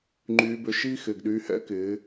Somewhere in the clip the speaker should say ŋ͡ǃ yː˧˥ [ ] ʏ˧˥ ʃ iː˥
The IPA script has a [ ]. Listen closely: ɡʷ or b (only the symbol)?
b